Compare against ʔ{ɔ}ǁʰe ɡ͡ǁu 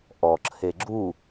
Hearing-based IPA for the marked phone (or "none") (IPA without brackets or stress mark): ɔ